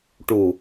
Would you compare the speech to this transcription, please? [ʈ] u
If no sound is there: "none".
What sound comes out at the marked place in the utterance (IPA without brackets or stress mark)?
ʈ